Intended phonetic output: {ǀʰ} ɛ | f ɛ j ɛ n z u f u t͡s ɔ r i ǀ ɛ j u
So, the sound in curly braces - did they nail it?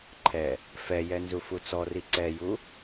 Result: no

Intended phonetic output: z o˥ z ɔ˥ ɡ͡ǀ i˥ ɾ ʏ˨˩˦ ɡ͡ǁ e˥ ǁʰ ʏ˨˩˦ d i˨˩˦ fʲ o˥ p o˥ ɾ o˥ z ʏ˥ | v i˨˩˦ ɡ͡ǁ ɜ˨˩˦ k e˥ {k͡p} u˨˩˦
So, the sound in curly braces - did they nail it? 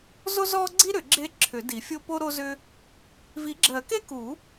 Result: no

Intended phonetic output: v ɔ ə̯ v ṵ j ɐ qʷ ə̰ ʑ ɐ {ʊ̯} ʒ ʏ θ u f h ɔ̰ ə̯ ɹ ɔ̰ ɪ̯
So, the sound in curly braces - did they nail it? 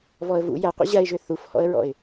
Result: no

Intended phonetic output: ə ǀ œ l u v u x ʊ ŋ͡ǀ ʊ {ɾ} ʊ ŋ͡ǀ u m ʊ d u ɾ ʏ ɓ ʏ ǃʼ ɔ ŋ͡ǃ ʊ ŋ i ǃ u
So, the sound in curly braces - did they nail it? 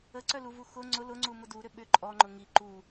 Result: no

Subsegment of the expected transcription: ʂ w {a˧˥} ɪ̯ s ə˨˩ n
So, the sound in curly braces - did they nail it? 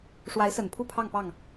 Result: yes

